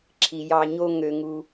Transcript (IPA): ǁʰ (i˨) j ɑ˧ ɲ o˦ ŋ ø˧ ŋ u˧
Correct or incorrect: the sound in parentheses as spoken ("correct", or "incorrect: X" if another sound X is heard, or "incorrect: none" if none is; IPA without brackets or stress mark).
correct